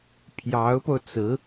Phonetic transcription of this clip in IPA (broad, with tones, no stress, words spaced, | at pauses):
pʰjɑ˧˥ʊ̯po˧ʊ̯t͡sɹ̩˧˥